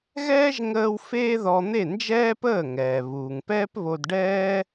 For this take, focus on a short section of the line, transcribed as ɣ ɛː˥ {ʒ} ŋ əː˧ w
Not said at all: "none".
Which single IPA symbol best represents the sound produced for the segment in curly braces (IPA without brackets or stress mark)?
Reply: ʒ